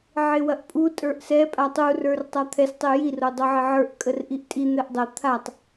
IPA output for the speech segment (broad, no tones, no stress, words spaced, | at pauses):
ʕɪwɐʔpʼu tʼə˞ʔsɛ pʼatˤurə˞r tˤat̪ʰɛstˤɪ jir odˤoʕɪʕə˞ʔ kʼərʔiʔtʼi n̪ɛʔdˤə t̪ʰatˤ